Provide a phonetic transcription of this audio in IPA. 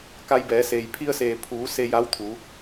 k a˧ j b ɛː˩˧ s eː˩ j pʰ i˧ ə̯ s eː˩ pʰ uː˩˧ s e˧ j a˧˥ w t̪ʰ u˩˧

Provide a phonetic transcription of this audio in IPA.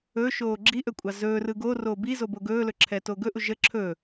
ɵ ʃ oː ɡ͡ǁ i ʔ ɵ kʷʼ ɑ z ɵː r ɯ ɡ o r oː b i z o b o ɡ ɵː l ɵ ǁʰ ɛ t o ɡ ɵ ʔ u ʒ ə ǁʰ ɵ

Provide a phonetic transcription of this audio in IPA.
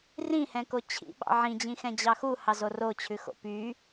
r ĩ h ɛ̃ k o t͡ɕʰ ḭ ɓ ɑ̰ ʕ ĩ d͡ʑ ĩ x ɛ̃ d͡ʑ ɑ x u h ɑ z o r o t͡ɕʰ ʉ x o̰ p y

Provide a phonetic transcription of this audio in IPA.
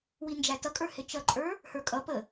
w i n d͡ʒ æ t ʌ kʼ ə˞ h ɪ t͡ʃ ʌ ǃʼ ə˞ | h ə˞ kʼ ʌ p ə

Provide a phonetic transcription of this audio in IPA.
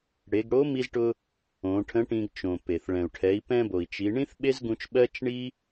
ɽ e˩˧ ɡ ɽ o˧˥ m i˧ z ʈ ʊ˧ | õ˩˧ ʈʰ ə̃˧˥ ʈ ĩ˧ ɡ t͡ʃ õ˩ p e˩ θ ɭ ɛ̃˩ u̯ ʈʰ ɛ˩˧ i̯ p ɛ̃˧ b o˩ i̯ t͡ʃ i˩˧ ɳ ĩ˥ θ ɓ e˥ z ɡ ũ˧ t͡ʃ ɓ ɜ˥ t͡ʃ ɳ i˥

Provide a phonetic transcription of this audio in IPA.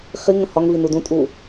χ i ŋ ə̃ h ɒ ŋ v i n u d ũ tʼ uː

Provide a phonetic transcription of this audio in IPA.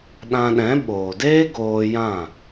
ɗ ã˧ ɗ ɛ̃˨˦ ɓ oː˨ d eː˦ ɡ oː˧ j ã˦˨

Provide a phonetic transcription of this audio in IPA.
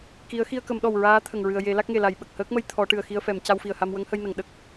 k i˧˥ ə̯ x i˧ ə̯ k ə˨˩˦ m ɗ ɔ˨˩ w ɹ aː˧˥ t̪ʰ ə˨˩ ŋ ɹ ɨ˨˩ ə̯ j e˨˩˦ l a˦˥ k̚ ŋ e˨˩ l a˨˩˦ j ɓ ə˨˩ k̚ h əː˦˥ k̚ m ə˧ j t̪ʰ ɔ˨˩˦ ʈ ɨ˨˩ ə̯ x i˧ ə̯ f ɛ˨˩˨ m c a˧ w f i˨˩ ə̯ h a˧ m w ə˧˥ ŋ h ə˧ j n ə˨˩˨ ŋ ɗ ə˦˥ k̚

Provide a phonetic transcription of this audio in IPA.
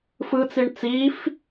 f ɯ t͡s i ɳ t͡s iː f

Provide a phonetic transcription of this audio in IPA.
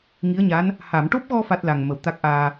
ŋ i˧˥ ə̯ ɲ a˧˥ n | h a˨˩˨ m ʈ o˦˥ p̚ ɣ ɔ˧ f a˦˥ t̚ l a˨˩ ŋ m ə˨˩˨ w t̪ a˦˥ k̚ ʔ aː˧

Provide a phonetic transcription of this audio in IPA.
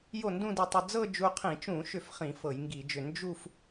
j o˥˩ n d ũ˥˧ d i˧ tˤ ʉ˧ d͡z ɤ˥˧ d͡ʒ u˧ qʰ ĩ˧˩˧ t͡ʃ ũ˧˩˧ ʃ ʏ˧˩ f χ ĩ˧˩˧ f ɤ˧˩˧ j ŋ ɡ i˧˩˧ d͡ʒ ʏ˧˩ n d͡ʒ u˥˧ f

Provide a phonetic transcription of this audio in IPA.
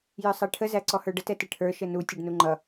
j ə˞ sˤ ɑ ʈʰ ə z æ ǀ ɔ h ə˞ ɖ ə t ɛ t ɪ ʈʰ ə˞ ʃ ə n u tʲ ʌ ɖ n u ŋ͡ǃ ʌ

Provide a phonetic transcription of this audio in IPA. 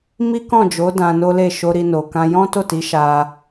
m i˦ k ɔ̃˦˨ d͡ʒ o˨˦ d ã˧ n o˦ l e˦˨ ʃ o˧ ɾ i˧ n o˨ k ã˧ j ɔ̃˦ t o˦˨ t i˨˦ ʃ a˧

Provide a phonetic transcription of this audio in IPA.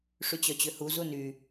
ʂ y t͡ɕ œ t͡ɕ ø h u z u n y

